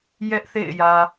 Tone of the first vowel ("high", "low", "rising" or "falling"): high